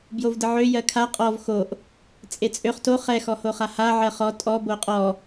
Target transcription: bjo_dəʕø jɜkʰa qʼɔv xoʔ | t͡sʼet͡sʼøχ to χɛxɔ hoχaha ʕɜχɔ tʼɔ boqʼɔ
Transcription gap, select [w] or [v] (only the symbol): v